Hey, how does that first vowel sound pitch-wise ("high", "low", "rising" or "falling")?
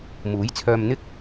rising